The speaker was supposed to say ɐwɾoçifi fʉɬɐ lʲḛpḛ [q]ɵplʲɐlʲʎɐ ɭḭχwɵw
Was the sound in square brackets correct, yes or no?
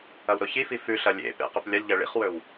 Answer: yes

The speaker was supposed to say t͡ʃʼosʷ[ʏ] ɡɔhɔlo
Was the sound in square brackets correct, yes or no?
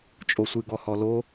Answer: no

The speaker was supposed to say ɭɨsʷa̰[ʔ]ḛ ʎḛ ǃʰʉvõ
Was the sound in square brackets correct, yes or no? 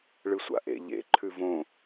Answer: yes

